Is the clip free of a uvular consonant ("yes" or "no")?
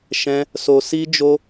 yes